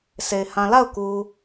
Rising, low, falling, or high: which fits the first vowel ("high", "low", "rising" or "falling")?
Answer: low